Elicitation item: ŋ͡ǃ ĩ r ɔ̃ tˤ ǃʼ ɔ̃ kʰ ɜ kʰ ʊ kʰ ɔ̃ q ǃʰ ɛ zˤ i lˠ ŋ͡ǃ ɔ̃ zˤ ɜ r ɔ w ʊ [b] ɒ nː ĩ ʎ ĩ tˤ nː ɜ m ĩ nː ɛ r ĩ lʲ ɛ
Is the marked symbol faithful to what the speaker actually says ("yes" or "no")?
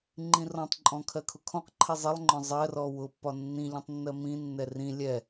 no